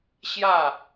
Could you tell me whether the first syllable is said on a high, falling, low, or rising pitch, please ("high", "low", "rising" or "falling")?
falling